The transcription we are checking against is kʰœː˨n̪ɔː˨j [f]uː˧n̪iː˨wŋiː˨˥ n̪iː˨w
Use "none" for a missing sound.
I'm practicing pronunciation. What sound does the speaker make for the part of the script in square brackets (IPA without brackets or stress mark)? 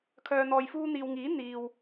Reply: f